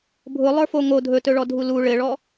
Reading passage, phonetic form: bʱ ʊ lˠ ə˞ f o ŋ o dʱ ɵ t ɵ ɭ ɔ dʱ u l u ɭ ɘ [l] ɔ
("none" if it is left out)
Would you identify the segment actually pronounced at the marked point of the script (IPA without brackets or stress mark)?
ɭ